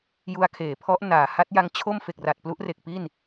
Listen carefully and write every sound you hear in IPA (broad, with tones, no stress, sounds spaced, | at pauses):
j u˧ a̯ kʰ eː˩˦ pʰ ɔ˦˥ ʔ n aː˩˦ h a˦˥ t̚ j a˦˥ ŋ t͡ɕʰ o˥˩ m f e˨˩ k̚ r a˨˩ t̚ p l u˦˥ ʔ r e˨˩ k̚ p i˥˩ n